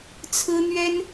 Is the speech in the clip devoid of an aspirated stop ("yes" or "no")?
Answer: no